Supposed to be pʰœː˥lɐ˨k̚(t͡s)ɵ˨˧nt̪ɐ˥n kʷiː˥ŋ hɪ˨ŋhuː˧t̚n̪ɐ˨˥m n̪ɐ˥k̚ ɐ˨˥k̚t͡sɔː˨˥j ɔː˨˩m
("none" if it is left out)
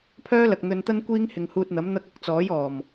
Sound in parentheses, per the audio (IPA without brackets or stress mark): n̪